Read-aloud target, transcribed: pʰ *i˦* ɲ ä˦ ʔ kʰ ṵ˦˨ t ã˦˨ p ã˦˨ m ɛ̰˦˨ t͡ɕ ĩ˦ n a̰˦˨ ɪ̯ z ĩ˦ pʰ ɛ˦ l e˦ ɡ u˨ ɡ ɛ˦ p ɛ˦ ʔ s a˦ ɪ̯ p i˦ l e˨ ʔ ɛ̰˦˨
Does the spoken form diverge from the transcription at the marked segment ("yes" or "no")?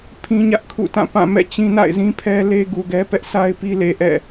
yes